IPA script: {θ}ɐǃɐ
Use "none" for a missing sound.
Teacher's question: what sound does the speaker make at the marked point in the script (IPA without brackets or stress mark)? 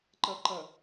ǃ